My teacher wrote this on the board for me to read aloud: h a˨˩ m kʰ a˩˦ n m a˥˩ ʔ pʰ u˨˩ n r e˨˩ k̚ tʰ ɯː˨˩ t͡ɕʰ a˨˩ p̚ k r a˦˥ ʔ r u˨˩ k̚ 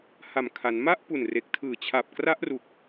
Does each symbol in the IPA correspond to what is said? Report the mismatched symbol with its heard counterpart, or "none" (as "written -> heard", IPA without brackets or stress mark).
pʰ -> p